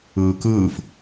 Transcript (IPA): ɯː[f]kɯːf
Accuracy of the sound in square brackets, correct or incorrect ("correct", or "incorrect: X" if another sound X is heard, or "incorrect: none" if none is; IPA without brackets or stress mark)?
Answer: incorrect: none